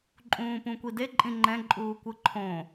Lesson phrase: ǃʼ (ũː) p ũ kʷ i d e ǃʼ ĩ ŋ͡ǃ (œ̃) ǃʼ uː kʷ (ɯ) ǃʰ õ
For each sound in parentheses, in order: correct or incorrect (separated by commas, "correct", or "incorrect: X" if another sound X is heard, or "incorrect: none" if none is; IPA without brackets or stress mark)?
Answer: correct, incorrect: ɛ̃, correct